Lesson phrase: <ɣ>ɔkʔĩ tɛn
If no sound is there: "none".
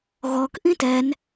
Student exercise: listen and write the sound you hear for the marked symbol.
ɣ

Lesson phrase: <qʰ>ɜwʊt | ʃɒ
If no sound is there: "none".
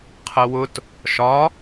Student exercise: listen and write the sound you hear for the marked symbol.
qʰ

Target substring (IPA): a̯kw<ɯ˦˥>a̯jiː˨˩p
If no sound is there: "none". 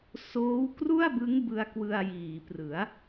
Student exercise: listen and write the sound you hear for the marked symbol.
ɯ˧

